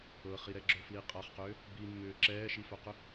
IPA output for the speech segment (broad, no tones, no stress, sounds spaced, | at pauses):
ɤ χ i ɾ ɛ ɡ͡ǁ ɵ f l i qʼ a χ q ʏː | b i mː ʏː ǁ ɛː ʃ i f œ q ʏ